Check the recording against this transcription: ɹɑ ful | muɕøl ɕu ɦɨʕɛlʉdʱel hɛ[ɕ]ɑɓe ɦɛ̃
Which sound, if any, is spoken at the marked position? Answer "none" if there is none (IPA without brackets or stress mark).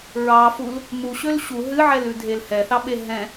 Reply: θ